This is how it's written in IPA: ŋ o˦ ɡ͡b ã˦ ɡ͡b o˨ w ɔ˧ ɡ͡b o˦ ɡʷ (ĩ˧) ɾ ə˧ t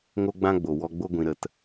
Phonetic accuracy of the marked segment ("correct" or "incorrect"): correct